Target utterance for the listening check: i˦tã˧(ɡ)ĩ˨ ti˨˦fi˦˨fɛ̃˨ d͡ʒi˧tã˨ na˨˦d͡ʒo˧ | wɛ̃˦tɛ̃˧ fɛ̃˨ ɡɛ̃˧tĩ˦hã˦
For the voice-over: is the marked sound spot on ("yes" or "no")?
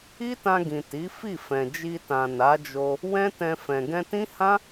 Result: yes